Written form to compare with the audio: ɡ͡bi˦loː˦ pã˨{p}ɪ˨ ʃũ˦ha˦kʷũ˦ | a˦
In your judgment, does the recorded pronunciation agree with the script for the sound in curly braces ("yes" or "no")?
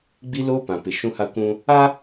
yes